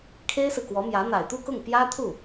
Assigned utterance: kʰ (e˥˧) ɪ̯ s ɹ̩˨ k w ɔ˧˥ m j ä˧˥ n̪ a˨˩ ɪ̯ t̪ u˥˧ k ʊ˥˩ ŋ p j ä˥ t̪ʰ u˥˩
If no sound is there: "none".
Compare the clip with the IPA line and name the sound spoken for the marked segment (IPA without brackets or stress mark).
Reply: e˥